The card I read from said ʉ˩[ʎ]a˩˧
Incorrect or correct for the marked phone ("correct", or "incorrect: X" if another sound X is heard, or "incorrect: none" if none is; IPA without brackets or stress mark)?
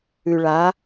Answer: incorrect: ɭ